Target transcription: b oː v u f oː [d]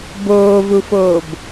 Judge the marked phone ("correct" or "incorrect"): incorrect